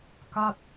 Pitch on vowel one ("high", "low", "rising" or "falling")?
falling